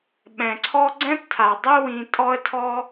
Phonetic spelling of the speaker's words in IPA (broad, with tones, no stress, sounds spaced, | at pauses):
ɓ ɛ̃˩ ǀʰ ɔ˥ ɡ͡ǀ ɛ̃˥ p tʰ a˩ dˤ e˥ w ĩ˧ tʼ ɔ˥ ə̯ tʰ ɔ˥